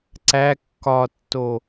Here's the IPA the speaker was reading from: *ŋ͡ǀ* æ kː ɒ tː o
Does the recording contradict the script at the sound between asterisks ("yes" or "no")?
yes